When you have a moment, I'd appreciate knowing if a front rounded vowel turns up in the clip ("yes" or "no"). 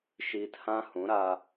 no